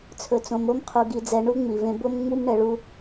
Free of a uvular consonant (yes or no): no